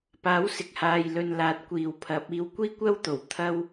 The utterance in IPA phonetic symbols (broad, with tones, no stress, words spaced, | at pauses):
paː˨˥wsɪ˨k̚haː˨jlɵ˨n laː˨˥t̚kʷiː˨wpʰɐ˨˥p̚ iː˨˧wkʷiː˥kʷɐ˥wt̪o˨˩w t̪ʰɐ˥w